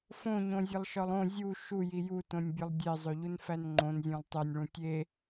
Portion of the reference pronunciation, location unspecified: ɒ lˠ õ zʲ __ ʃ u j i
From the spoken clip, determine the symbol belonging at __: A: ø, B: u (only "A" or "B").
B